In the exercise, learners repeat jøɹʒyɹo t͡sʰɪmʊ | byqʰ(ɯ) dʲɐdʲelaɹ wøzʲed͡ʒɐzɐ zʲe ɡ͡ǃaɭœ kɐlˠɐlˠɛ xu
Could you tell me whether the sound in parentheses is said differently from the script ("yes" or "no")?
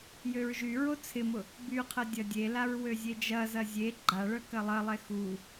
yes